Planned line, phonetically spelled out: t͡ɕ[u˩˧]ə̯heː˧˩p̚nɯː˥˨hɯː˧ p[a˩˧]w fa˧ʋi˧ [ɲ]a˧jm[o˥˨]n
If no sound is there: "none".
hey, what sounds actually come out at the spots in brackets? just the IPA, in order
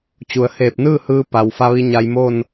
u˩˧, a˩, ɲ, o˥˨

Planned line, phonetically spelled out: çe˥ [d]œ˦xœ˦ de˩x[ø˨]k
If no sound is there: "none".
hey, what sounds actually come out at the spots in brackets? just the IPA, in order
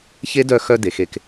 d, e˨

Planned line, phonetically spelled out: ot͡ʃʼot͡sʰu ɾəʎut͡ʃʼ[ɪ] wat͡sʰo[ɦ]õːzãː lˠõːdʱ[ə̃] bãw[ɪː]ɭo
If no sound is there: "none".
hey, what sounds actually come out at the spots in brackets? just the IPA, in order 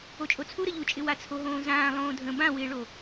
ɪ, ɦ, ə̃, ɪː

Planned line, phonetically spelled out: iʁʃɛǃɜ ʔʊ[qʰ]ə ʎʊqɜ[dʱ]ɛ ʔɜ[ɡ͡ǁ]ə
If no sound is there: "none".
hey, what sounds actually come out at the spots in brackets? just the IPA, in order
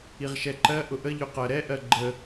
ʔ, ɾ, ɡ͡ǃ

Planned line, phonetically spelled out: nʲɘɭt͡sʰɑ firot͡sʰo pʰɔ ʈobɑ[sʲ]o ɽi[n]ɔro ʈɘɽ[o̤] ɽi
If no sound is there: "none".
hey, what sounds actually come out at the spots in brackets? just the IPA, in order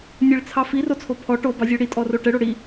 zʲ, tʼ, o

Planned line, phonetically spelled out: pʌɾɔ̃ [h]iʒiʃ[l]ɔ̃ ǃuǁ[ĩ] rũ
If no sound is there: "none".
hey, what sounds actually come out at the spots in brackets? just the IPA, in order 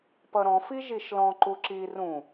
f, l, i

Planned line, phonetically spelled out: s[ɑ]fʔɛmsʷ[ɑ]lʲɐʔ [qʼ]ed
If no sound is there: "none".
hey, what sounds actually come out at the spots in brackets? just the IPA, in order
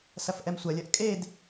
ɐ, ɐ, kʼ

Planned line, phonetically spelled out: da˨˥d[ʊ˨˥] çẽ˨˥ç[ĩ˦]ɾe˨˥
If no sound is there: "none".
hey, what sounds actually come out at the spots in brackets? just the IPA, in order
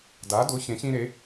ʊ˨˥, ĩ˦

